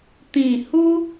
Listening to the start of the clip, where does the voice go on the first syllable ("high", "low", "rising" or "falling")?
falling